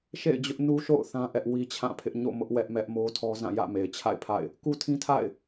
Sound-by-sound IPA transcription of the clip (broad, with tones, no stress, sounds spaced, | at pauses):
ʃ ḛ˦˨ ɪ̯ d͡ʑ ʊ˦ ʔ n u˦ ʃ o̰˦˨ ʊ̯ θ ã˦ ʔ ɛ˦ ʔ w i˦ t͡ɕʰ ã˦˨ pʰ ɪ˦ ʔ ɲ o̰˦˨ m ʊ˦ ʔ w ɛ˦ ʔ m ɛ˦ ʔ m o˦ tʰ ɔ˦ z ã˦˨ j ä̰˦˨ m e˨ ɪ̯ t͡ɕʰ a̰˦˨ ɪ̯ pʰ a̰˦˨ ɪ̯ | k u˦ tʰ ĩ˦ tʰ a̰˦˨ ɪ̯